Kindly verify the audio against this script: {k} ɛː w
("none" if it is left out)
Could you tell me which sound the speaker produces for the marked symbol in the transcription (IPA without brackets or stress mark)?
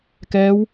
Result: k